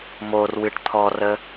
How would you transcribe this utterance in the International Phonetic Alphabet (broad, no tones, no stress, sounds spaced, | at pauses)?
m o r w ɨ ʈ t̪ʰ ɔ r ə